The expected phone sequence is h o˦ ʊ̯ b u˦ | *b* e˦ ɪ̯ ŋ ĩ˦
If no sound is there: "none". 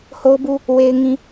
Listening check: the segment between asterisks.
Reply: w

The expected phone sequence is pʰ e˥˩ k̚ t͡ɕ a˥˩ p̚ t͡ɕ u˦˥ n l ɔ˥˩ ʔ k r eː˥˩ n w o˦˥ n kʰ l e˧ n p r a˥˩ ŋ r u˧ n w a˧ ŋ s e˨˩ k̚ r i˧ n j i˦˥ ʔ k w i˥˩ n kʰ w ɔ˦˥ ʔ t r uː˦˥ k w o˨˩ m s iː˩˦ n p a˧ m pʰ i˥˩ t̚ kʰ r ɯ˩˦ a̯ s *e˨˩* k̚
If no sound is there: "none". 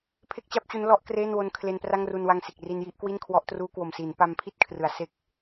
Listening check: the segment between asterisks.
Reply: e˥˩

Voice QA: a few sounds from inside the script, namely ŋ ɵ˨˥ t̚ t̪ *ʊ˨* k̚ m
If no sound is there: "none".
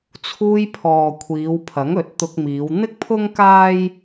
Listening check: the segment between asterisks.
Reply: ʊ˧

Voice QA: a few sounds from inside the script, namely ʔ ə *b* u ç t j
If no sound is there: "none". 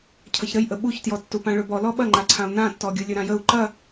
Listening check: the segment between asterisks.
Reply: ɓ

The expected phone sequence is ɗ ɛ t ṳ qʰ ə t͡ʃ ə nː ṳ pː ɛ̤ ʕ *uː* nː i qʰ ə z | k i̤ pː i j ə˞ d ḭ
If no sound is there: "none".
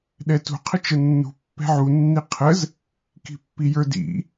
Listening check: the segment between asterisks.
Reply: u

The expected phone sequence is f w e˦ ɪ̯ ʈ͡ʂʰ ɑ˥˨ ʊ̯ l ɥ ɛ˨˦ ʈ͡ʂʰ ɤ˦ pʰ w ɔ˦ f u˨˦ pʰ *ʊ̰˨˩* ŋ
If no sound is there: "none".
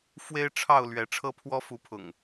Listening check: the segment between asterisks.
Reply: ʊ̰˨˩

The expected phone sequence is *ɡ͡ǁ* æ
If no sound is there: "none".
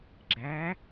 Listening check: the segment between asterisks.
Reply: ɡ͡ǁ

